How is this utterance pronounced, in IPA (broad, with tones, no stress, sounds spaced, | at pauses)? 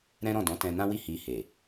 ɾ ɛ̃˦ ɾ ɔ̃˦˨ d ɔ̃˨˦ t ɛ̃˧ n ã˦ w i˦˨ h i˧ h e˨